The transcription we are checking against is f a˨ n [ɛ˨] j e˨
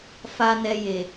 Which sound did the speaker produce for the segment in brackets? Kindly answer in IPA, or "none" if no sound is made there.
ɛ˨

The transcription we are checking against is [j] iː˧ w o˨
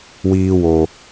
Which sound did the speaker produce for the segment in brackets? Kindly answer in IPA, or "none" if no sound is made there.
w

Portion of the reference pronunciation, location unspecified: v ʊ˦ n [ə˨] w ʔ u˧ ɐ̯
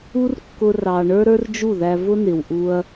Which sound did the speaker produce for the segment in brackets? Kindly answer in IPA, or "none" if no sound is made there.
ɪ˨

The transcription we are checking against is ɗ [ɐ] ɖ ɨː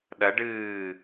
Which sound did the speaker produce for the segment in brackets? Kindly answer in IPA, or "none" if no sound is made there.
ɐ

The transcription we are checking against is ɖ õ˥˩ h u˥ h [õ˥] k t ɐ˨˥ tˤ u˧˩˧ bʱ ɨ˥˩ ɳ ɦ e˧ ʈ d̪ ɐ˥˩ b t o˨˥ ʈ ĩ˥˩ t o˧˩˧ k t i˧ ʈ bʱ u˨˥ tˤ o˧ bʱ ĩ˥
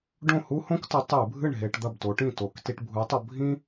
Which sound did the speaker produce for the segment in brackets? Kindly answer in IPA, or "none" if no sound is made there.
õ˥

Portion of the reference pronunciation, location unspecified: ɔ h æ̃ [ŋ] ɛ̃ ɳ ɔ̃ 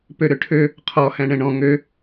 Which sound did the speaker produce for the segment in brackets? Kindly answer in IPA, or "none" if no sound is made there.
ɳ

